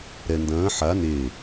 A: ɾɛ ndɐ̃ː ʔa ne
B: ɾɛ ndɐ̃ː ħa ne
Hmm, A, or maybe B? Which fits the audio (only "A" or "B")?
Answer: B